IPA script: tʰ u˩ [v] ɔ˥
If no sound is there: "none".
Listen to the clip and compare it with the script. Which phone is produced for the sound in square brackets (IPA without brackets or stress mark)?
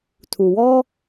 w